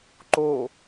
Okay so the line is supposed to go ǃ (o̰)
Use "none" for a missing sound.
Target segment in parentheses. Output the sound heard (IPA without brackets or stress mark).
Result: o